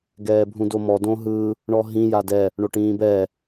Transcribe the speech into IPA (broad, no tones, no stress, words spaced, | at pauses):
ɡɛːbʱũdomɔ dõɦɯ | ɳɔɦĩ jadɛ | ɳoʈĩːbɛ